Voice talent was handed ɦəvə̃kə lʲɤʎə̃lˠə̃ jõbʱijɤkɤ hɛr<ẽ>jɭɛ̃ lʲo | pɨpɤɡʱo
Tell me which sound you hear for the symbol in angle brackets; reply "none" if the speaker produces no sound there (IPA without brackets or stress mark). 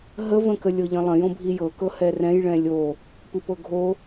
ɛ̃